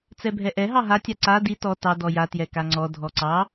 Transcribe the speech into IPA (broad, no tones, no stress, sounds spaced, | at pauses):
t͡s ɛ bʱ ɛ ʔ ɛ ɦ ɑ ɦ a tʲ a ǀ a d i t ɔ t ɑ d ɔ j a t j ɛ k a ŋ͡ǀ ɔ dʱ ɔ ǀ ɑ